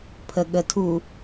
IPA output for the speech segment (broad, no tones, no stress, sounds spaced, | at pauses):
pʰ ə ɠ ə tʰ u